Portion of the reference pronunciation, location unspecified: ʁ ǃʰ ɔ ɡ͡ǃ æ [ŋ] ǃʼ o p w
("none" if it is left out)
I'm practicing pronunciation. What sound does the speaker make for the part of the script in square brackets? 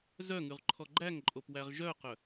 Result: ŋ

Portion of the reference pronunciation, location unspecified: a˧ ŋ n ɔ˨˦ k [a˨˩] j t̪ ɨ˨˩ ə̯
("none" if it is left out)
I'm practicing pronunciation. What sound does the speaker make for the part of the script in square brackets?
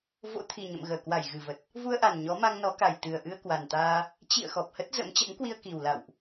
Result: a˨˩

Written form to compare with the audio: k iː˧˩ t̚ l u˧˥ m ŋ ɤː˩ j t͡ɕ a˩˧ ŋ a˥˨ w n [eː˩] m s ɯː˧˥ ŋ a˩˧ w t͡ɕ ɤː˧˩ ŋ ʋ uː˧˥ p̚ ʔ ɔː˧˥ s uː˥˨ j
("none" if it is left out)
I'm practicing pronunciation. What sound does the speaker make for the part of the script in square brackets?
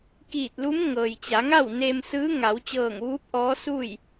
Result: eː˧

